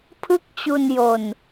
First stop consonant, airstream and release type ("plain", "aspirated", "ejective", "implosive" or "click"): aspirated